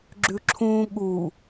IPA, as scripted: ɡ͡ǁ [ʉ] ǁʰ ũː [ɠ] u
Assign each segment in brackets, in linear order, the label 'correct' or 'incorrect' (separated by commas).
correct, correct